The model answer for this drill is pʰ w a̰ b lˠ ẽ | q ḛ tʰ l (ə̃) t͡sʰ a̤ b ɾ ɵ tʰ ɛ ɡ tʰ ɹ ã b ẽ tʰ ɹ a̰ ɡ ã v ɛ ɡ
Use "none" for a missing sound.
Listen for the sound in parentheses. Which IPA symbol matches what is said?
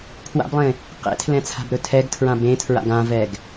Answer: ɛ̃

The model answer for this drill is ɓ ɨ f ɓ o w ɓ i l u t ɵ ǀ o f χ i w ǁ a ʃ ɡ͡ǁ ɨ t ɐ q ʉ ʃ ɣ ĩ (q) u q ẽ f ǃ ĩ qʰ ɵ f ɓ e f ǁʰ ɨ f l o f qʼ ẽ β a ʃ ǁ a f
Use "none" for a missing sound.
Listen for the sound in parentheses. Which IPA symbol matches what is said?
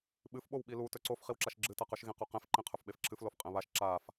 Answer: q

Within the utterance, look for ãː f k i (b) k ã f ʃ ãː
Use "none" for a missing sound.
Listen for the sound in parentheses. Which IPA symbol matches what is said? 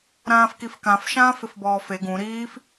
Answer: f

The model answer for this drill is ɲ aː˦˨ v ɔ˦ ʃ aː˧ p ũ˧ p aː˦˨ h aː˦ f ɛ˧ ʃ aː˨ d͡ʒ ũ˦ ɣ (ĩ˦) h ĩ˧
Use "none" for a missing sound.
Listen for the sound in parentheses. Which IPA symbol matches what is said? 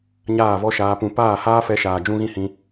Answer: ĩ˦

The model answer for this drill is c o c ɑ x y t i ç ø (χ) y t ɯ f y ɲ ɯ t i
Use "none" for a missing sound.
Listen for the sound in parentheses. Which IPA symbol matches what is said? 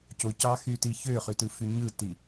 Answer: χ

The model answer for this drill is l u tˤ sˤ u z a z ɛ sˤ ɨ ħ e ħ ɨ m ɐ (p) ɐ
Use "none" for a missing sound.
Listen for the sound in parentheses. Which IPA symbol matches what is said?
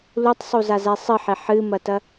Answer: t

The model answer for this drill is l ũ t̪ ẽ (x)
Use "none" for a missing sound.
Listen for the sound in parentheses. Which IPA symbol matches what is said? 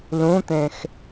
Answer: x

